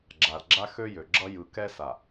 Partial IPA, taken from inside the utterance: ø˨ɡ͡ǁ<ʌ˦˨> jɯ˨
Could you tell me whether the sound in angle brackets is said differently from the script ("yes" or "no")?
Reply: yes